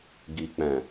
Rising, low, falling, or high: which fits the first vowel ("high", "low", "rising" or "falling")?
low